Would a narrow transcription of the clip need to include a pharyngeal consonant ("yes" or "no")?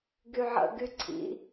yes